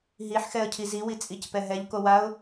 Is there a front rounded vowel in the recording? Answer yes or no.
no